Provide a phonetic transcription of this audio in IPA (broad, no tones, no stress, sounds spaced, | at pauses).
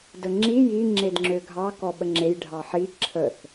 d ə ŋ͡ǁ i j i ŋ͡ǁ e d ŋ͡ǁ ø ɡʱ ɑ k ɔ ɓ ə ŋ͡ǁ e j ɖʱ ɑ ħ i ǁʰ ə θ